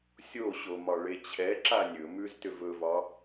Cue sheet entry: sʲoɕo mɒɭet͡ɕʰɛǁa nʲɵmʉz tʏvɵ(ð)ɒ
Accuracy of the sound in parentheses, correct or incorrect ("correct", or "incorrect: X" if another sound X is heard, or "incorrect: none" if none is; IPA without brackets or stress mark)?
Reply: incorrect: v